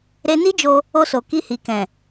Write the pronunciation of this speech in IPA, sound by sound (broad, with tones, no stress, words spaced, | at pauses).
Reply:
ɾe˧ni˦d͡ʒo˧ | o˧so˨ ki˧hi˨kɛ̃˨